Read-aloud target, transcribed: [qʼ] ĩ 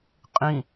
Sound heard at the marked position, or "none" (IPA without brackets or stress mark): qʼ